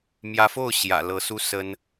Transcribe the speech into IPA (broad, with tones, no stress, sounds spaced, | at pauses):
m j ä˧˥ f o˥˩ ʊ̯ ɕ j ä̰˨˩ l ɤ˧˥ s u˥ s ə˥ n